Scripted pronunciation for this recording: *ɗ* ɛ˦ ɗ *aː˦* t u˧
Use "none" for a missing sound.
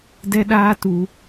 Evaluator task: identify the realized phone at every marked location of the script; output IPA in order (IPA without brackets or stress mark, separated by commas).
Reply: d, aː˦